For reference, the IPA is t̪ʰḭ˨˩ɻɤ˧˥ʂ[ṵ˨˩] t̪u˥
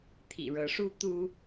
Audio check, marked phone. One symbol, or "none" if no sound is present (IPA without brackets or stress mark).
u˥